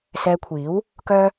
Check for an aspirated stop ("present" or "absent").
present